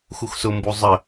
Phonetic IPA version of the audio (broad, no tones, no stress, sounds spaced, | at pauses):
x u x s ʊ m b u zˤ ə